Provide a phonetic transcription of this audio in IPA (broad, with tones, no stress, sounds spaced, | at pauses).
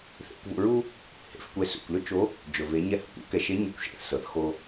θ ḛ˩˧ kʷ v ṵ˧ ɹ u˥ | h ḛ˩˧ f kʷ ɛ˧ s ṵ˩ kʷ l ʏ˥ t͡ʃ o˧˥ | d͡ʒ ɵ˩ v e˩˧ ɲ ɛ˧ h ɵ˩ kʷ ṵ˧˥ k ɛ˧ ʃ e˧˥ ɲ ɛ˧ kʷ ʃ ḛ˧˥ θ s ɤ˩ θ x o˧